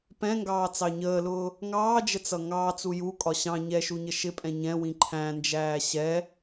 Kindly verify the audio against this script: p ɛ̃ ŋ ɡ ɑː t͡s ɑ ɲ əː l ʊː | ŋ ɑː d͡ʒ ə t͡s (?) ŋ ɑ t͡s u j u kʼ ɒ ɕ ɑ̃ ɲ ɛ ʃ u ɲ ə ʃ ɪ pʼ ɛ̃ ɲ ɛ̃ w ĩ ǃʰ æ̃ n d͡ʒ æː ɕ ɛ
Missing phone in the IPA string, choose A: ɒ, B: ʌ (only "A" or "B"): B